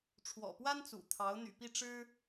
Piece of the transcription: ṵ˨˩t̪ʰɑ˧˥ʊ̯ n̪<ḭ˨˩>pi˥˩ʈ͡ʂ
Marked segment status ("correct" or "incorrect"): incorrect